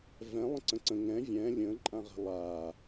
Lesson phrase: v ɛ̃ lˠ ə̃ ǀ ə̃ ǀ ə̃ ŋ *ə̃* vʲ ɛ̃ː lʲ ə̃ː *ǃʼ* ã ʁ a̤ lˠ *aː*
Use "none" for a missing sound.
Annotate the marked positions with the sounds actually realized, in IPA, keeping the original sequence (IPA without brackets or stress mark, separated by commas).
ɛ̃, ǃʼ, aː